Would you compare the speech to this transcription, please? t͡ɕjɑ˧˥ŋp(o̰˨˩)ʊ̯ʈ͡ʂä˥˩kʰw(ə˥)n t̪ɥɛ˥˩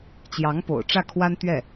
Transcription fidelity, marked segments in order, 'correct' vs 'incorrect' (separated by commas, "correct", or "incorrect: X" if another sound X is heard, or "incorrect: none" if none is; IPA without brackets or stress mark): correct, incorrect: a˥